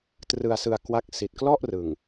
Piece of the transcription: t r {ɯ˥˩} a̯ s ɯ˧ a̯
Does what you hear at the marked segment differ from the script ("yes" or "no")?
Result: yes